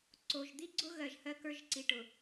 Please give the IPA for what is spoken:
ǀo˨ʒ d̪i˦ɡ͡ǀʊ˦ ɣɜ˨ʒhɜ˦kə˞˦ʒ ǀi˨ʈʊ˨

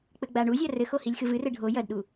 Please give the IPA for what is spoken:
k͡pɘɡ͡baɳuzʲa rɘxo hilʲxɨvɨrɘ ɖʱo jɐdɗu

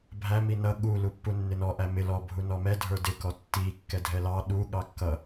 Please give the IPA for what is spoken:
bʱæ minʌ ɠu lupːunːɪnɔ ʔæmɪ lɔ bʱunɔmɛ dʱə˞dɪ kɔtːi kːɛdʱɛlɑ ɗu ɠɑkːʌ

